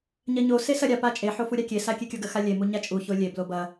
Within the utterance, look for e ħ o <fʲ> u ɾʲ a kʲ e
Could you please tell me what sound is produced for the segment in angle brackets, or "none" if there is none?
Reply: f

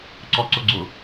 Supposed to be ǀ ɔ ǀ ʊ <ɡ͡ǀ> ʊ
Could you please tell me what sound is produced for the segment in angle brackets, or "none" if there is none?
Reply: ɡ͡ǀ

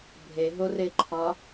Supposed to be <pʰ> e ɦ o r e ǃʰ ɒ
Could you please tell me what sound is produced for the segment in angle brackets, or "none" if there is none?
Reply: bʱ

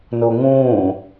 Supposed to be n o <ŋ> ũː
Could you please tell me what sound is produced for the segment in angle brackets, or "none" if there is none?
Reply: ŋ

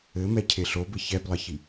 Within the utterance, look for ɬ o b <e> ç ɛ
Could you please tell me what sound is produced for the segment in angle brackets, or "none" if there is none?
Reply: ɘ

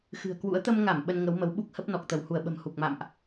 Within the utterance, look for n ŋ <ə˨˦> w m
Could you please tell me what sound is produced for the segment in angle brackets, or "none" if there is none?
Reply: ə˨˦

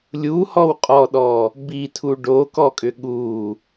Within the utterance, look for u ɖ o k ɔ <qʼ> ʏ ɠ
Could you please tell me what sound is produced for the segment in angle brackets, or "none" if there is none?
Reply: kʼ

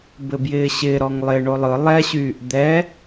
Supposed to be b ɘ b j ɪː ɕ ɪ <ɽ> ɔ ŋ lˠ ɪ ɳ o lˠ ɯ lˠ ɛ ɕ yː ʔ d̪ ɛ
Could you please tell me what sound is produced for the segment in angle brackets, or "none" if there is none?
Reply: ɾ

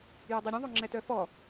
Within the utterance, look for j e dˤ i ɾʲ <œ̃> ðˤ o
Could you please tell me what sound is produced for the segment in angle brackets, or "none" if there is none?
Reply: œ̃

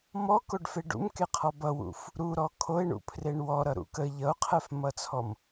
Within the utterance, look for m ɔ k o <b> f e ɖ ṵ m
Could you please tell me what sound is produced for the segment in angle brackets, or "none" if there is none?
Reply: ɖ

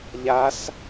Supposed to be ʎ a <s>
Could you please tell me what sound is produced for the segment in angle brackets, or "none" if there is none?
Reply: s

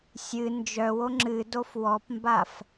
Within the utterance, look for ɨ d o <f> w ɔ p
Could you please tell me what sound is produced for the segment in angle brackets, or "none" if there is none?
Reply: f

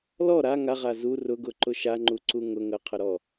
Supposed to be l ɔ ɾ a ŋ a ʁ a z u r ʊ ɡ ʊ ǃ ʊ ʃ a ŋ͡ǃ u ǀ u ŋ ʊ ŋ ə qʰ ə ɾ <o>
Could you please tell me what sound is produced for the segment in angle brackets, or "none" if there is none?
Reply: ɔ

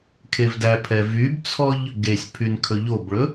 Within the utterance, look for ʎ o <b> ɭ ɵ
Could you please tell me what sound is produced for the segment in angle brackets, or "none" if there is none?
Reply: b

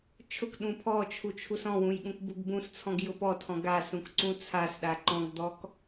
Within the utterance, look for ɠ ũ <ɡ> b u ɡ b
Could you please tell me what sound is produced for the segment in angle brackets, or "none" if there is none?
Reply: k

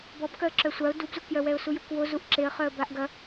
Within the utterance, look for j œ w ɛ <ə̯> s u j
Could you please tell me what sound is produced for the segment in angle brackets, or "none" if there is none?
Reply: ʊ̯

